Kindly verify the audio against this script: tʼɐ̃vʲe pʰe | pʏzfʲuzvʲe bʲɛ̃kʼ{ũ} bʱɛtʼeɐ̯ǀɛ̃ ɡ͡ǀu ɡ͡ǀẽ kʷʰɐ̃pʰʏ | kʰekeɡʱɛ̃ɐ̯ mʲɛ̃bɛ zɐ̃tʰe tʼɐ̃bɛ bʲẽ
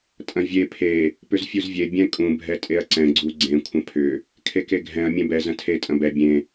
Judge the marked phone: correct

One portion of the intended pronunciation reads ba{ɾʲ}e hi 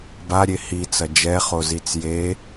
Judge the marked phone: correct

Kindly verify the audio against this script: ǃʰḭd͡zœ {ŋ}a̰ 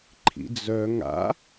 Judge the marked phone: correct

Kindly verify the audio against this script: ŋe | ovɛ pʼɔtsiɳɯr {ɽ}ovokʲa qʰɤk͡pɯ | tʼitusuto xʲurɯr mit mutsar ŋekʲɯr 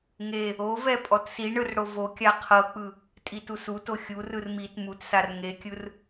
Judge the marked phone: correct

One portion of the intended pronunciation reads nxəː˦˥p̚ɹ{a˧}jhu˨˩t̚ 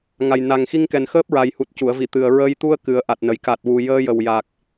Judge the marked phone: incorrect: a˨˩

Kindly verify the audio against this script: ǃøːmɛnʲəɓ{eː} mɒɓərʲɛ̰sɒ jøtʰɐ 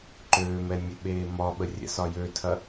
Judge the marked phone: correct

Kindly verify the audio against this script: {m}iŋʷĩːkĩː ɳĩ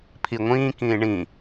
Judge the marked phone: incorrect: pʰ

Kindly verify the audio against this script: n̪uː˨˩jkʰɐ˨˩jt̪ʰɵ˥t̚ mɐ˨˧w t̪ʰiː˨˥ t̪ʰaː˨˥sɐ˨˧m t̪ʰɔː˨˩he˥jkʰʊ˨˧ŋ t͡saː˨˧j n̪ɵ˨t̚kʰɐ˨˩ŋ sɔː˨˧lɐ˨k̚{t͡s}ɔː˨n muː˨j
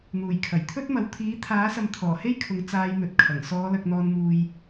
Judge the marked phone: incorrect: n̪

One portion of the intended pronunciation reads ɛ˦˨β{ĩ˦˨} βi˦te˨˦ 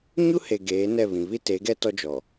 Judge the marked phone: incorrect: ĩ˨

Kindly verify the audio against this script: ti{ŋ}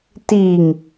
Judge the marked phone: correct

